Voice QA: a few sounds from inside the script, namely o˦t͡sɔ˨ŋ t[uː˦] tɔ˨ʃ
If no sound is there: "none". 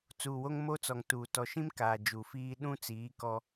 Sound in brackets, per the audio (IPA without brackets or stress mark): uː˨